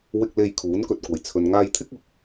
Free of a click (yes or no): yes